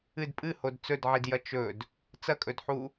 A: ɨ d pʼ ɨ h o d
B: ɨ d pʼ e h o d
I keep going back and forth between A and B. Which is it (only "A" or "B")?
A